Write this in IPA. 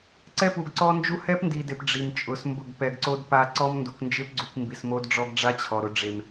ǀ ɛ˦ p u˨ ɡ ǀ ɔ˦ n d͡ʒ u˦ h ɛ˦ p n d i˨ d e˨ p ɖ͡ʐ i˨ m t͡ʃʼ ʊ˨ s m b ʊ˦˨ ɡ p ɛ˨ ɡ ǀ o˦ d p a˦˨ ǀ ɔ˦ m n d u˨ k n d͡ʒ ɪ˦ p ɡ͡ǀ u˨ k m b i˨ s m o˦ d ɖ͡ʐ ɔ˦ ɡ ɖ͡ʐ a˦ t͡ɕʰ ɔ˨ ɾ ʊ˨˦ ɖ͡ʐ e˨ m

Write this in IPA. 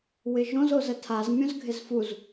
w ɪ ʒ õ z o z ə tʰ a z mʲ õ z ɡʱ ɪ z f u z

